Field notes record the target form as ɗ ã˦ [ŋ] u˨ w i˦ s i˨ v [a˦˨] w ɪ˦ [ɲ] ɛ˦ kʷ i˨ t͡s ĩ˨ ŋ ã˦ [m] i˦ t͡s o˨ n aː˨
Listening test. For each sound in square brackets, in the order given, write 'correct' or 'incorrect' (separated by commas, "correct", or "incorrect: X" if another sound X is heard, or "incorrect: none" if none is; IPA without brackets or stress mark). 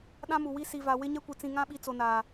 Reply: incorrect: m, incorrect: a˨, correct, incorrect: ɓ